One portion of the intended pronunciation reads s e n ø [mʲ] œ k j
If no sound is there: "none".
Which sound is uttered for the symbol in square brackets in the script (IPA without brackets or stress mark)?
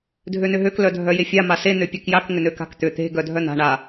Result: pʲ